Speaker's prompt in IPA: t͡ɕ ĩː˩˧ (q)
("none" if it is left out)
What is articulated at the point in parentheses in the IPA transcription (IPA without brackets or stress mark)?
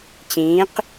q